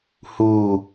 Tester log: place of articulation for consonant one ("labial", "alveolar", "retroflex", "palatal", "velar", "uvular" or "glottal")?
glottal